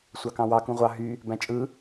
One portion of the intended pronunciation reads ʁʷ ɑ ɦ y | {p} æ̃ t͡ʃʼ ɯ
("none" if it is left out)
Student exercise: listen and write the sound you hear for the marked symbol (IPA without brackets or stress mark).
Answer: b